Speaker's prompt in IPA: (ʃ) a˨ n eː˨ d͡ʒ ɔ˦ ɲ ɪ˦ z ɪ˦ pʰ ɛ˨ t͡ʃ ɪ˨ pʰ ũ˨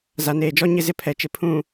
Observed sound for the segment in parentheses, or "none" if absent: z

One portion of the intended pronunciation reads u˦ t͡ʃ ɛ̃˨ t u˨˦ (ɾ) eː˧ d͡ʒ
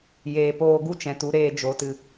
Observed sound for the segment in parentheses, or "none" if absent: ɾ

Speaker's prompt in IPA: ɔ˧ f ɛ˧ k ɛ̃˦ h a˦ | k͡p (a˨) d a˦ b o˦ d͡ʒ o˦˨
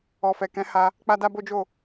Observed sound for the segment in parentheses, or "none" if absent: a˦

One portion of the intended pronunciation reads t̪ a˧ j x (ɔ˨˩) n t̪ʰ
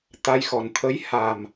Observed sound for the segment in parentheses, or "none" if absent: ɔ˨˩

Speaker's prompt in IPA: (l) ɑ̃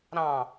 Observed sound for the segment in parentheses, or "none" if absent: ɾ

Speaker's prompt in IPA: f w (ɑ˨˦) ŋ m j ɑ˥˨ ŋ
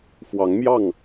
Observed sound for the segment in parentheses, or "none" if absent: ɑ˨˦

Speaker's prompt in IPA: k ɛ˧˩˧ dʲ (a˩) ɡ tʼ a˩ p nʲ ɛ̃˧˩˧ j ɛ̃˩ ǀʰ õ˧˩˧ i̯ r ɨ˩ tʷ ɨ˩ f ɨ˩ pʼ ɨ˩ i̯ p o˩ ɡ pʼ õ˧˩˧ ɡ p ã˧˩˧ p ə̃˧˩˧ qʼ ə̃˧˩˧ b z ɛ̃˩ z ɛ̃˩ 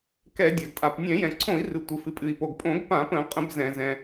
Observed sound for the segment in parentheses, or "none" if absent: a˩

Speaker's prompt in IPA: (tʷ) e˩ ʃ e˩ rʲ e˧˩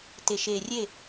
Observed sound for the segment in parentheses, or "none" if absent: t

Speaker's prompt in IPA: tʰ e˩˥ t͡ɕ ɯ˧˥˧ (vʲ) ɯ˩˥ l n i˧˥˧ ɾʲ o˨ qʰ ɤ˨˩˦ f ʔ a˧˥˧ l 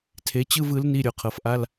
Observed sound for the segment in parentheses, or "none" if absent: v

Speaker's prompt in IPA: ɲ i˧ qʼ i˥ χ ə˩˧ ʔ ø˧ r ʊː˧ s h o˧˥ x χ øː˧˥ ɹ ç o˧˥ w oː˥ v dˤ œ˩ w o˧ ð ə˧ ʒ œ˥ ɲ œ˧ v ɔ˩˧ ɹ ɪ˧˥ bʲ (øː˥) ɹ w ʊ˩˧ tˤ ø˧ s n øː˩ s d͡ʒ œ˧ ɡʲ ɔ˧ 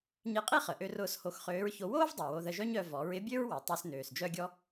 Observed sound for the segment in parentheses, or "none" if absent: ø˥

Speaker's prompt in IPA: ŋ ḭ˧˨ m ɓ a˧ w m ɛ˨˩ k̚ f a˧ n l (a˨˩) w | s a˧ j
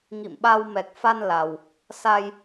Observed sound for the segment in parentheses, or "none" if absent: a˨˩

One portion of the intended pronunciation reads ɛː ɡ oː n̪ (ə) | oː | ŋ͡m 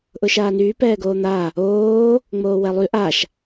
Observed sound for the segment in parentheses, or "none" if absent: a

